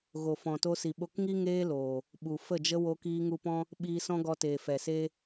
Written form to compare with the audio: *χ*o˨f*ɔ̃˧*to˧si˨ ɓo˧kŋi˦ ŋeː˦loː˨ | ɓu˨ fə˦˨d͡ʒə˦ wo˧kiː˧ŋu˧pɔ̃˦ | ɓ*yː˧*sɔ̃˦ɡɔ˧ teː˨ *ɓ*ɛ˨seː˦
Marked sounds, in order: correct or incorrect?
incorrect, incorrect, incorrect, incorrect

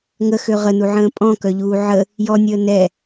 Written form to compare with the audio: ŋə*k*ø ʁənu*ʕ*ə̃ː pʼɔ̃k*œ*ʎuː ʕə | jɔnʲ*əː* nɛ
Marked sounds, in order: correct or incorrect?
incorrect, correct, correct, correct

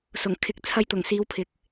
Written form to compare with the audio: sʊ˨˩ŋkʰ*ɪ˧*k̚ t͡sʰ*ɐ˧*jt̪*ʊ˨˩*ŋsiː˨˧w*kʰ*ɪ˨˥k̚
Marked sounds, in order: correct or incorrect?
incorrect, correct, correct, incorrect

